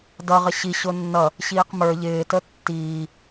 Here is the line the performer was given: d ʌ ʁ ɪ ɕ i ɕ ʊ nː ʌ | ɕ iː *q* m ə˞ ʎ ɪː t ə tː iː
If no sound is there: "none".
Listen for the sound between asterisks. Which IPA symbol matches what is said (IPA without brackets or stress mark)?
q